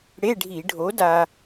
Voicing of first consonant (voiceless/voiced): voiced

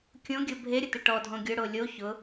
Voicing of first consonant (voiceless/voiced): voiceless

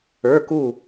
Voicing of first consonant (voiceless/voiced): voiceless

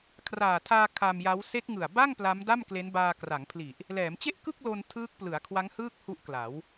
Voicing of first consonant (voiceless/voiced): voiceless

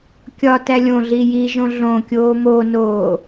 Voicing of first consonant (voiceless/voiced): voiceless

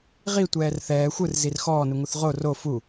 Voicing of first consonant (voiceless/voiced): voiced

